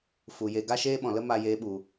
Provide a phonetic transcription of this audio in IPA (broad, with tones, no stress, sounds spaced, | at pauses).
f u˨ j e˧ ɡ a˦ ʃ eː˦ ɓ ɔ̃˨ l ə˦ m a˧ j eː˧ ɓ u˨